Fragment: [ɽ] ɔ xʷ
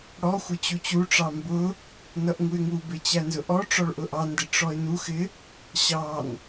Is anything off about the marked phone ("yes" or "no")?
no